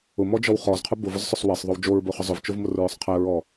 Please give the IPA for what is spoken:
ʊ m ɔ d͡ʒ ɔ w χ ɔ z qʰ ʊ b ʊ v ʊ z sˤ ʊ sˤ w ɛ sˤ ðˤ o w d͡ʒ o ɹ b o χ ʊ zˤ ʊ v t͡ʃ o v m ʊ r ɹ ʊ sˤ qʰ ɛ ɹ ɔ

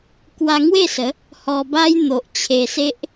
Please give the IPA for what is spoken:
k w a˧ ŋ w e˥˧ s ə˨˦ | h ɔ˧ b a˦ j n̪ o˨ ʔ t͡ɕʰ e˧ s e˦ ʔ

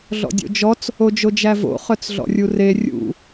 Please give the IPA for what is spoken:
ɮ ɔ̰ dʲ o̰ d͡ʒ ɔ t͡s | o d͡ʒ o d͡ʒ æ v o̰ χ œ t͡s ɮ ɔ̰ rʲ u r e rʲ ṵ

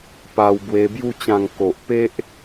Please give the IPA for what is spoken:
p a˧ w b w e˧ b j u˦ t͡ɕ ã˧ ŋ k o˨ ʔ p e˦ ʔ

